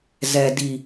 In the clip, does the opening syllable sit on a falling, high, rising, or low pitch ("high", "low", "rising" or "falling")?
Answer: low